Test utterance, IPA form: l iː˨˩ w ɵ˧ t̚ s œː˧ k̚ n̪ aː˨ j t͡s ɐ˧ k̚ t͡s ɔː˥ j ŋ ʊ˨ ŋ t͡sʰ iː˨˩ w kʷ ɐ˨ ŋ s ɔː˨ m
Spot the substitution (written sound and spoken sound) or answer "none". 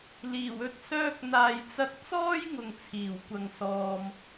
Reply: none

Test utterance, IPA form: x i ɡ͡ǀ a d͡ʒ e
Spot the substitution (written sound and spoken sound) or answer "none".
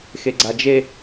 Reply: i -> e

